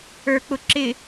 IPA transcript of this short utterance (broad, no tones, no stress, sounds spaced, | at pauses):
ə˞ k͡p ʊ ǁ ɪ